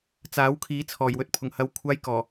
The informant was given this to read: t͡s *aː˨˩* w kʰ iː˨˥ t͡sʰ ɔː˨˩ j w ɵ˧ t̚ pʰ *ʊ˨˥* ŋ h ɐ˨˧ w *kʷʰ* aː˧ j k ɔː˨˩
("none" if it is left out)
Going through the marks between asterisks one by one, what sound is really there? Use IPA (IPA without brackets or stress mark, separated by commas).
aː˨˥, ʊ˨˩, kʷʰ